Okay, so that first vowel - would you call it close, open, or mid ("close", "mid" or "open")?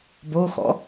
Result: mid